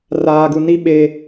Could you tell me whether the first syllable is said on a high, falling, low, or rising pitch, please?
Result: low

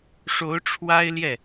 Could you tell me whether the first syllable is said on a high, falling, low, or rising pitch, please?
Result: rising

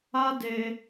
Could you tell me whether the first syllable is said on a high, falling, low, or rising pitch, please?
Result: high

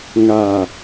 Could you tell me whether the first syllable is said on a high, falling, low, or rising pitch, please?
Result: low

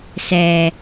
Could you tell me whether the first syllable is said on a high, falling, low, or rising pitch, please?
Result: low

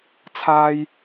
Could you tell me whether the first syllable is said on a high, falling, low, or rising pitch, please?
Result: high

